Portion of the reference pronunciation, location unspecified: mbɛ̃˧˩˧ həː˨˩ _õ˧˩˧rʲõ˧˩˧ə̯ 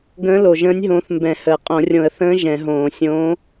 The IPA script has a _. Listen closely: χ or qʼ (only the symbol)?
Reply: qʼ